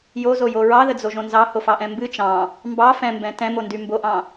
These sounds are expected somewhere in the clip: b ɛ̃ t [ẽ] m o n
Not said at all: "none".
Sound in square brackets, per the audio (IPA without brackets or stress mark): ɛ̃